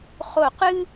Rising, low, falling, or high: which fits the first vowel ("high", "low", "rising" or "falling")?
falling